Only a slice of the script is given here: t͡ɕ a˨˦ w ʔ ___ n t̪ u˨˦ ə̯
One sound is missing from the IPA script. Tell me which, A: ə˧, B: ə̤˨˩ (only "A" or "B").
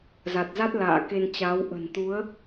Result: B